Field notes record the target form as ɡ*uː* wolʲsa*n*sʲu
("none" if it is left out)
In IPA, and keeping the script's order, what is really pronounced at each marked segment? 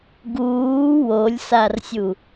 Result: uː, r

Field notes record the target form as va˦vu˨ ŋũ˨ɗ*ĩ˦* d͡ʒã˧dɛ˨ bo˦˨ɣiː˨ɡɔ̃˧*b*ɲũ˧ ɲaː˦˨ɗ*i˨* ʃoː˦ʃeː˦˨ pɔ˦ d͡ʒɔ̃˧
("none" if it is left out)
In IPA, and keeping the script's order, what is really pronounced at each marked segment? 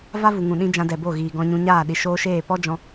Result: ĩ˦, none, i˨

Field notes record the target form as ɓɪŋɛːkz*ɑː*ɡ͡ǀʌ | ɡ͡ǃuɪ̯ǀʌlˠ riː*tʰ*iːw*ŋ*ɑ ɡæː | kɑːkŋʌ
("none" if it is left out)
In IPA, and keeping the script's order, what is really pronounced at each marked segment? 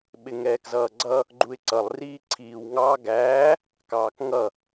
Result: ʌː, ǀʰ, ŋ

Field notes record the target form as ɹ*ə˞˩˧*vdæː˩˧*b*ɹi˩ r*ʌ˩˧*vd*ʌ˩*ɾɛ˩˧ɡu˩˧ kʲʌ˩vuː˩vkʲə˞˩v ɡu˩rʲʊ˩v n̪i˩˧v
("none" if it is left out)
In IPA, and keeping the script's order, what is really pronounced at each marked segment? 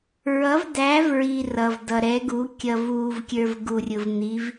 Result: ʌ˩˧, v, ʌ˩, ʌ˩

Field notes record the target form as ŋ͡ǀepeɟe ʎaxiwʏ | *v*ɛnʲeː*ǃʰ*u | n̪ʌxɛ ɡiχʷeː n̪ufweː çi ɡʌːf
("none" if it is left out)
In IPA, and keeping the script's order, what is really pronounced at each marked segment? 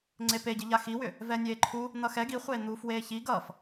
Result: v, ǃʰ

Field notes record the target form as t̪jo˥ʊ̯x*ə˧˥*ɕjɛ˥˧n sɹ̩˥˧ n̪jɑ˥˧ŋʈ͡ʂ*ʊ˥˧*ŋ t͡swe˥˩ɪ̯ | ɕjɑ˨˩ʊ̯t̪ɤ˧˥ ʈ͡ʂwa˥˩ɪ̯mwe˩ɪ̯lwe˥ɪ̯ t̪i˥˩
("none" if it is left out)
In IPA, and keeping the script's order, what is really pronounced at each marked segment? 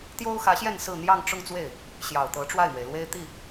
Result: ä˧˥, ʊ˥˧

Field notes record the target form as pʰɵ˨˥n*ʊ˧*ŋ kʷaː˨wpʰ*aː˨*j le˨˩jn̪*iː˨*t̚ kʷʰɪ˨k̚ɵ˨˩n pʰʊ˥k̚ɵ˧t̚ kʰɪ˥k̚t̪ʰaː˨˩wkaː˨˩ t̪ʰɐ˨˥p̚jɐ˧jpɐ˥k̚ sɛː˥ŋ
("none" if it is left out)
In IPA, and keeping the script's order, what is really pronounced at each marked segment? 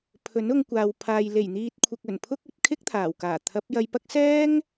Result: ʊ˧, aː˨, iː˨

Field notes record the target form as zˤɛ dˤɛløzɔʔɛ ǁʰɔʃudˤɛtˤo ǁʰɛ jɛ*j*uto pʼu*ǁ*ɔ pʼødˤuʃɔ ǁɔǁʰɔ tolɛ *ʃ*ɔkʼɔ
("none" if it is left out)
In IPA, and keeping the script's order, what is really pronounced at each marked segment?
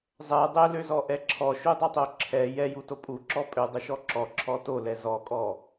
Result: j, ǁ, z

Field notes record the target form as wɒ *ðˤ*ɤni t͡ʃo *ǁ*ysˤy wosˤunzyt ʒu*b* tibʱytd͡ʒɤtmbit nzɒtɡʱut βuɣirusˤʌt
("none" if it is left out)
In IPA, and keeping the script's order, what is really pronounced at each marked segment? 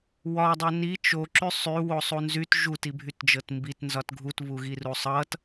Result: dˤ, ǁ, none

